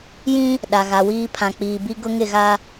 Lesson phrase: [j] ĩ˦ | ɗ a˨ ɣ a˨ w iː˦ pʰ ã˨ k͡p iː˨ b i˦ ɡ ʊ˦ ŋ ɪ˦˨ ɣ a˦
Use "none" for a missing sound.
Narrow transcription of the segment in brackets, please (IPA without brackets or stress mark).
j